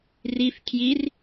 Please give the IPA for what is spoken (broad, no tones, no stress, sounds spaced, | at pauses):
r i f kʰ j i r